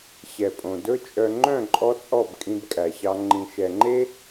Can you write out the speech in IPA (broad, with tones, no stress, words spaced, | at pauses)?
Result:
ɕɛ˨pʼõ˨dɵ˦ t͡ʃʼœ˨ ŋ͡ǃœ̃˦˨ǃʼɔ˧ t͡sʼɔ˦˨bkʼĩ˧bkʼæ˨ɕɑ˧ ŋ͡ǃĩ˨ʃɛ˨ŋ͡ǃe˦